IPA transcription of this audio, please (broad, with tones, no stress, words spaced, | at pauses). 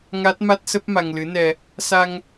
ŋa˦˥t̚ma˦˥t̚sə˦˥p̚ ma˧ŋlɨ˨˦nɛ˧ | sa˧ŋ